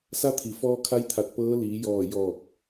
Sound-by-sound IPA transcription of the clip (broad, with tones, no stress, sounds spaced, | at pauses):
s a˧˥ t̪ʰ i˩ f ɔː˧ kʰ a˧˥ j t̪ʰ a˧˩ t̚ p ɤː˧˥ l iː˩˧ j ɔː˧˩ j ɔː˧˩ k̚